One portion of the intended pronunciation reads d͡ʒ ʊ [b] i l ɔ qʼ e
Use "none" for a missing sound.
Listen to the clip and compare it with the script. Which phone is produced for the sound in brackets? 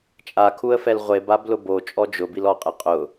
b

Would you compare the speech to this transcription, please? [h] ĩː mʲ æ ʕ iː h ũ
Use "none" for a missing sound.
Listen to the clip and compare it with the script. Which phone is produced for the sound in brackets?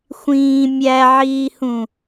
xʷ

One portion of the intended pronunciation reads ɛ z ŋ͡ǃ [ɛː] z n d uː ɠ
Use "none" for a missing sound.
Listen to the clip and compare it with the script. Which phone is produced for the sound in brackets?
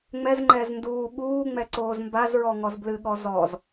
ɛː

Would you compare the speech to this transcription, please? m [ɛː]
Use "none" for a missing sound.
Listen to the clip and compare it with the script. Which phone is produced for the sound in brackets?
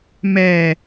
ɛː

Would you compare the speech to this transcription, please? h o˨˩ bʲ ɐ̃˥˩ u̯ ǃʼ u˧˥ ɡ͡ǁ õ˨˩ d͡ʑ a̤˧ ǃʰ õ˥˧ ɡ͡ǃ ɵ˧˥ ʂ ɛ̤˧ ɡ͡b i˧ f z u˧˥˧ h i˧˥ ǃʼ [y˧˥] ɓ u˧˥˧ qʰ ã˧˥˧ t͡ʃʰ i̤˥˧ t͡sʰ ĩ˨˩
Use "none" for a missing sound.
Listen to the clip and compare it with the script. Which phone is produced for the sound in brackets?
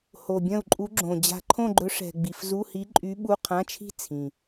y˧˥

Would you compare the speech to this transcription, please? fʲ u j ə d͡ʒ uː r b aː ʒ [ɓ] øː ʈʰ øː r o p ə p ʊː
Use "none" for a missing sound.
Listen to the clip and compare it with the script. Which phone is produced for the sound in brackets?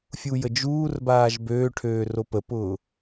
b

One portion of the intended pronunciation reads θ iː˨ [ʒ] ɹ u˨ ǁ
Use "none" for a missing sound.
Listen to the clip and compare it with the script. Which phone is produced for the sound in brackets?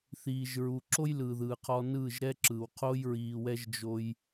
ʒ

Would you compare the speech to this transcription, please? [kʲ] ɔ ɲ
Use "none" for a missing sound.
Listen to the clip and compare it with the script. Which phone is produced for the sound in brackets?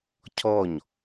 cʰ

